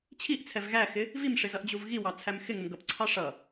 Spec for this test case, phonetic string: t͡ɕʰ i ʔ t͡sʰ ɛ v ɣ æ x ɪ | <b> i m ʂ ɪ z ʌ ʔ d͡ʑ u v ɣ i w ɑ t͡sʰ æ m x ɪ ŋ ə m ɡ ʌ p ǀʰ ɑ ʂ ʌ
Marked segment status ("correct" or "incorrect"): incorrect